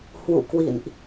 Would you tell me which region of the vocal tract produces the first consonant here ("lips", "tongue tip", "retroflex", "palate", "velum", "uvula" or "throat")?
throat